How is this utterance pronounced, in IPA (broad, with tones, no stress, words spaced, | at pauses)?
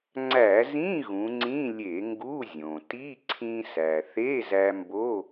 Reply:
ŋ͡ǀæ˧˩˧zĩ˧˥˧ ɣũ˩˧ŋ͡ǀĩ˧˥˧ lʲe˧˩˧ŋɡu˧˥˧ zʲõ˩ ti˧˥˧ǀʰĩ˧sæ˩ θe˧˥˧zæ˧mbo˧˥˧